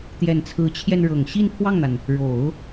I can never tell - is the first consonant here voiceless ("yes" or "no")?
yes